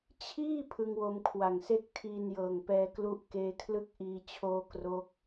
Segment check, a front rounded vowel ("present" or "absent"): absent